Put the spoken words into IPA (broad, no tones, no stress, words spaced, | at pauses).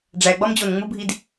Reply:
ɖ͡ʐæɡ͡bɒm d͡ʑonŋ͡mubʱid